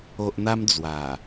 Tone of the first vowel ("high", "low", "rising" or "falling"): low